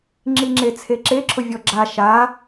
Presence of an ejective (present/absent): absent